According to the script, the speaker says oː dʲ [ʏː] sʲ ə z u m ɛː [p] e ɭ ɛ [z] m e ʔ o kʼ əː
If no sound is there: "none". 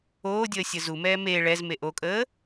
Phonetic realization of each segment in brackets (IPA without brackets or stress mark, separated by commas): əː, m, z